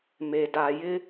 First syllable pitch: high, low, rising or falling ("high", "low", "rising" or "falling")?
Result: low